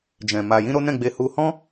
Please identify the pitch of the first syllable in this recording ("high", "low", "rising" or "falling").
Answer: low